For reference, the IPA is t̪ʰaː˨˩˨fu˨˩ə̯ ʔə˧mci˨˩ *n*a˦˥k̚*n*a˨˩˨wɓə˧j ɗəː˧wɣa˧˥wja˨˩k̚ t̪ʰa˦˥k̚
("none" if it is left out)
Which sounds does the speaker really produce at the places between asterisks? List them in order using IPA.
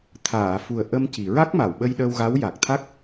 ɹ, m

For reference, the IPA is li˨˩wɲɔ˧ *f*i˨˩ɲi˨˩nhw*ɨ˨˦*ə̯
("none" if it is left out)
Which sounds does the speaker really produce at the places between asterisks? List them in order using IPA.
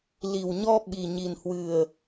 ɓ, ɨ˨˩

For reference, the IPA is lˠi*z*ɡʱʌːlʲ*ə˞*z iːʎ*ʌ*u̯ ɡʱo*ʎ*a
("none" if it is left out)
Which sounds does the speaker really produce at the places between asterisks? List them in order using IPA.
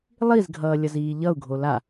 z, ʌ, ʌ, l

